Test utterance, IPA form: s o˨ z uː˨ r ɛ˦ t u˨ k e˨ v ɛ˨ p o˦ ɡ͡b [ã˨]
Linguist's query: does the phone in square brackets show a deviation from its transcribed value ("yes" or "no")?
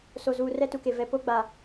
yes